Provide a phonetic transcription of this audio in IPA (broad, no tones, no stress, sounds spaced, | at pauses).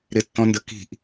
ɾ ɪ tː ɔ̃ n d ə k i̤ ʔ